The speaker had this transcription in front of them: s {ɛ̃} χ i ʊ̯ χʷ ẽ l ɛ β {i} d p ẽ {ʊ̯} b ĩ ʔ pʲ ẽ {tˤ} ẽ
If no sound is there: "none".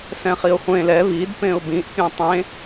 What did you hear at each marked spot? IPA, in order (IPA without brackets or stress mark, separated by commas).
ɛ̃, i, ʊ̯, tˤ